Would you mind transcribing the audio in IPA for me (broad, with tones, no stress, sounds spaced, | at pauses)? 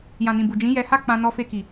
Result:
j ã˨ n ĩ˨ b u˨ d͡ʒ ĩ˨˦ j ɛ˧ h a˦ k͡p ã˧ n ɔ˧ f e˧ k i˨